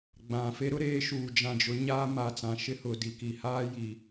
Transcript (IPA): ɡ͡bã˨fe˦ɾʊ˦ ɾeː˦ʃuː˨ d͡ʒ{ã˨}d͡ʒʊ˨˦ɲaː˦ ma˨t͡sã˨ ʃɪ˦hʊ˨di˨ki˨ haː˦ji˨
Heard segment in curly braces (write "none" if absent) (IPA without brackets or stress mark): ã˨